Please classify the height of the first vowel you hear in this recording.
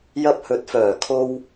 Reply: low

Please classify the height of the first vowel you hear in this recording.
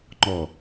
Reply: mid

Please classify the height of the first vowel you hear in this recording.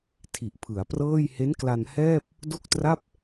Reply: high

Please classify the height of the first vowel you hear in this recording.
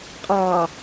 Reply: low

